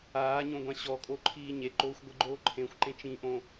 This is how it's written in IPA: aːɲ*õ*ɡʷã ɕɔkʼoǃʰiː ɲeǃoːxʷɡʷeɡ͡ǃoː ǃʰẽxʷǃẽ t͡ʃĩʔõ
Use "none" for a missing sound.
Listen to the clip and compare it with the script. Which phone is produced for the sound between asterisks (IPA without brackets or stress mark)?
õ